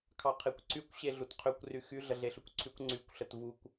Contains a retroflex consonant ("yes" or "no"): no